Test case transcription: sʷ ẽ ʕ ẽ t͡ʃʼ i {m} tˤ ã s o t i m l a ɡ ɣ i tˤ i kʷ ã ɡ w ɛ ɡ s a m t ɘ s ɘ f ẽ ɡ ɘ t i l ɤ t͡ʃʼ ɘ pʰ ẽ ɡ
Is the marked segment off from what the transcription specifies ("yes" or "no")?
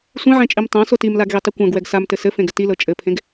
no